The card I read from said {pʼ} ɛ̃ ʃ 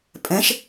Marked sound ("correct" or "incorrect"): correct